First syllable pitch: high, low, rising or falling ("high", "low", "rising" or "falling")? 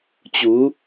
rising